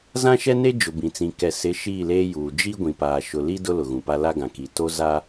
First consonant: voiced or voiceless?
voiced